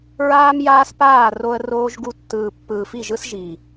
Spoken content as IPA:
ɹ aː˦ m j aː˦ s p aː˦˨ r o˧ ə̯ r oː˧ ʒ ɡ u˧ tː ɯː˨ pː ɯː˨ f i˦˨ ʒ ɯ˦ s ʒ i˨

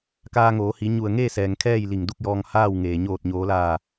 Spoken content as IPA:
k aː˧ ŋ oː˩˧ h i˩˧ ɲ u˧˩ ə̯ ŋ eː˥˨ s ɛː˩ ŋ kʰ ɛː˥˨ j l i˧˩ ŋ d u˥˨ k̚ j ɔː˧ ŋ h aː˥˨ w ŋ eː˩ ɲ oː˧˩ t̚ ɲ oː˩˧ l aː˧˩

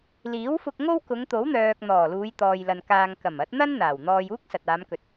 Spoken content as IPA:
l iː˨˥ w f ʊ˧ k̚ ŋ o˥ w k ʊ˨˧ ŋ t̪ o˨˥ w n̪ œː˨ k̚ n̪ ɔː˨˩ l uː˨˧ j t̪ ɔː˨ j l ɐ˨ n k aː˨ ŋ k ɐ˨˩ m ɐ˨˥ t̚ n̪ ɐ˥ n n̪ aː˨˩ w n̪ ɔː˧ j uː˥ k̚ s ɐ˨ t̚ aː˨˧ m k ɵ˨ t̚

